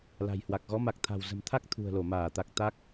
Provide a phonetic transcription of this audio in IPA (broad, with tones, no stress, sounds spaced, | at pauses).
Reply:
l a̤˨˩ j h w a˨˩ k̚ ɣ ɔ˨˦ m a˨˩ k̚ t̪ʰ a̤˨˩ w z ə̤˨˩ m t̪ʰ a˦˥ k̚ t̪ʰ ṳ˨˩ ə̯ l o˧˩ m aː˧˩ t̪ a˨˩ k̚ t̪ a˦˥ k̚